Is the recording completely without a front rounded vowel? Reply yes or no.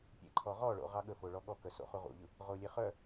no